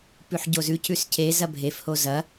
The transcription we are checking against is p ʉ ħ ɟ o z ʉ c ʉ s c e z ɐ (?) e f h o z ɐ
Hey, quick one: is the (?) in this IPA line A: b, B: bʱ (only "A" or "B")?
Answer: B